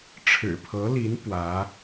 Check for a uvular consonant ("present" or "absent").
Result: absent